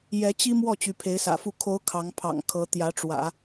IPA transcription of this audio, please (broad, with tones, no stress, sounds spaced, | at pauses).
j ɛ˧˥ t͡ɕ i˥ m w ɔ˥˩ t͡ɕ y˧˥ pʰ e˧˥ ɪ̯ s ä̰˨˩ f u˥˩ kʰ o˧˥ ʊ̯ kʰ ɑ˧˥ ŋ pʰ ɑ̰˨˩ ŋ kʰ ɤ˧˥ t̪ j ä˧˥ ʈ͡ʂ w ä̰˨˩˦